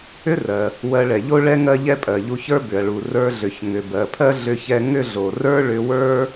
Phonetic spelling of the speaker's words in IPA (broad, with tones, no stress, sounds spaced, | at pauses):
ʏ˥ r ɜ˩ | w ɜ˧ ɭ ɛ˩ ʎ o˥ ɭ ɛ˥ ŋ ɜ˥ ʎ ɛ˥ pʼ ɜ˩ ʎ u˧ ç ə˞˥ b ʏ˩ ɐ̯ ɭ u˩ r ə˞˧ ɮ ʏ˩ ç ŋ ʏ˩ b ɜ˩ pʰ ɜ˥ ɮ ʏ˧ ç ɛ˧ ŋ ʏ˥ ɮ o˩ r ə˞˥ ɭ ʏ˧ w ə˞˥